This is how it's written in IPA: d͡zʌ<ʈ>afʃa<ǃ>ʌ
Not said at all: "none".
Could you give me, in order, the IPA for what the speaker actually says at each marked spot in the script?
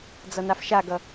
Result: n, ɡ

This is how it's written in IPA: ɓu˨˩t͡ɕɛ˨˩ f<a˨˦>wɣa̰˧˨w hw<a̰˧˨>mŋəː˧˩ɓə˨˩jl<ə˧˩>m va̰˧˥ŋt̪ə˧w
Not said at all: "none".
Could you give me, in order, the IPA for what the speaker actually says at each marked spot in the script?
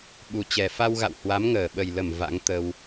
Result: a˧, a˨˦, ə˧˩

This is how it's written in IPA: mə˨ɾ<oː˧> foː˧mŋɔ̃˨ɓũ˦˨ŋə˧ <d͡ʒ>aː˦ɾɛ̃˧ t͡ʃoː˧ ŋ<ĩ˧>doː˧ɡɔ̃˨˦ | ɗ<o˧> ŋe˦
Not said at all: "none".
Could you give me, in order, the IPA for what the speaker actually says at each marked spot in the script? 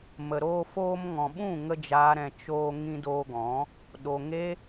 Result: oː˧, d͡ʒ, ĩ˧, o˨

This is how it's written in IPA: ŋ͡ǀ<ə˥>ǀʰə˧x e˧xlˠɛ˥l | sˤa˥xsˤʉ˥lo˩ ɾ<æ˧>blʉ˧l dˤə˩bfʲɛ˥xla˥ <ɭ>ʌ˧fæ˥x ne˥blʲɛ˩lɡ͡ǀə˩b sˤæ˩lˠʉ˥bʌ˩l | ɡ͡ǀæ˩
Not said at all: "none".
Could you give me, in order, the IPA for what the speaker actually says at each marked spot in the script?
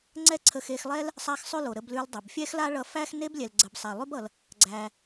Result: ɛ˥, ə˧, ɭ

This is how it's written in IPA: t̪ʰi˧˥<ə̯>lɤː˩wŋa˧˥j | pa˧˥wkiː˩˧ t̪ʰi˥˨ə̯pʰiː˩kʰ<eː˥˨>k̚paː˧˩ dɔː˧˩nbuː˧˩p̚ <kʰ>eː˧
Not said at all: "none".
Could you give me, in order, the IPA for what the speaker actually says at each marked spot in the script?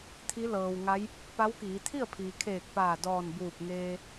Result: none, eː˧˩, ŋ

